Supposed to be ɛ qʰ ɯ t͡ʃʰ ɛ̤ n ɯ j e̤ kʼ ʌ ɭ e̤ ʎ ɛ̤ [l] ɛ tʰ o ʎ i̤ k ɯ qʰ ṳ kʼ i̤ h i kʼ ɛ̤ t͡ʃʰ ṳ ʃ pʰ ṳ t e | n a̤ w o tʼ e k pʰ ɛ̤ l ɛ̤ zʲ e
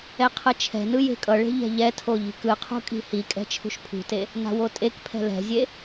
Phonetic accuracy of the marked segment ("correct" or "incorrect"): incorrect